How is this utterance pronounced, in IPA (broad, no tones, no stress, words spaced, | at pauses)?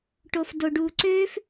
ʈofdoɖuǀøf